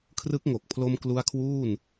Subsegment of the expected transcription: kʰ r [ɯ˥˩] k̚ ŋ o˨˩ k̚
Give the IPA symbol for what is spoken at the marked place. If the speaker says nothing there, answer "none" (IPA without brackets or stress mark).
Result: ɯ˦˥